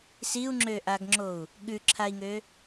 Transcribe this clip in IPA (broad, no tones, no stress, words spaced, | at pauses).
siu̯ŋ͡ǁøʔaɡŋ͡ǁou̯ | ɠʉǁʰai̯ŋø